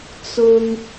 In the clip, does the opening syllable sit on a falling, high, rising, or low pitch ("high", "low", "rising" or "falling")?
high